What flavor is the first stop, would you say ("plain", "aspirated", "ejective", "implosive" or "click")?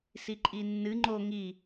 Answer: click